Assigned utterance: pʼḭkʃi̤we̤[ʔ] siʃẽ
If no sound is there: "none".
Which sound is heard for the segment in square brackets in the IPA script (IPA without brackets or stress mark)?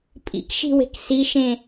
k